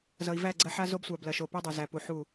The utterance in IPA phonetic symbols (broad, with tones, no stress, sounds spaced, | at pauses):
z ʌ˨ i̯ v æ˦˨ ɡ͡ǀ ɐ˦ ħ a˦ z o˦ b sʷ a˨ b l ɐ˨ ʃ o˨ p i˦ dˤ o˨ z æ˨ p u˨ ħ u˦˨